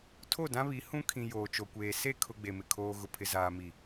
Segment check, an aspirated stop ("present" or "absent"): present